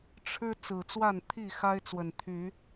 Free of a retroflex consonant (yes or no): no